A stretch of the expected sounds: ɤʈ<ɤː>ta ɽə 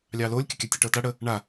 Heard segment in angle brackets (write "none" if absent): ɤː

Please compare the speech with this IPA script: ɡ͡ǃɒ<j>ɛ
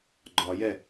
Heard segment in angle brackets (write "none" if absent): j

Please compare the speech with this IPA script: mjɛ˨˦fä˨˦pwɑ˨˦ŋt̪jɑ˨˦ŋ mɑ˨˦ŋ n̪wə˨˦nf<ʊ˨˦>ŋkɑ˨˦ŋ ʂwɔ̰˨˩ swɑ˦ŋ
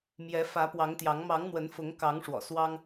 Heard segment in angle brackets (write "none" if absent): ʊ˨˦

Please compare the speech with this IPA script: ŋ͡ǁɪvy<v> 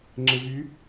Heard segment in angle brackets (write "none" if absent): none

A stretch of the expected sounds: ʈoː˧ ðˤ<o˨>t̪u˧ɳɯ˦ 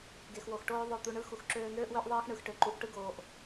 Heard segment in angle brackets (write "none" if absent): o˦˨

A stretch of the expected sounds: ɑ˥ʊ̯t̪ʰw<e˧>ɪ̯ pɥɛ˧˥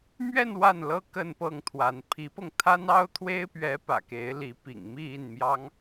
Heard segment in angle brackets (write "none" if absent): e˥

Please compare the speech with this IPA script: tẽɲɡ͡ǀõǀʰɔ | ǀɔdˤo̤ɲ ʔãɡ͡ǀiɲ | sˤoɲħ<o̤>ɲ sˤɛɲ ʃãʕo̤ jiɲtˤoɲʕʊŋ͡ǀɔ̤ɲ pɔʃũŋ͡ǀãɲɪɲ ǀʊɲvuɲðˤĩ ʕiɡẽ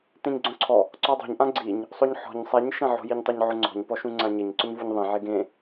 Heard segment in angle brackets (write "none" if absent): ɔ̤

